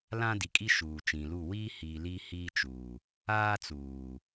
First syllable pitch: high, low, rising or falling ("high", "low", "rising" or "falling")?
high